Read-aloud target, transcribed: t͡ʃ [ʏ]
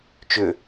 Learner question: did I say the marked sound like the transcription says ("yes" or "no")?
yes